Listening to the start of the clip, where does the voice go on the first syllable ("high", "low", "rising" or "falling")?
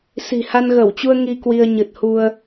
low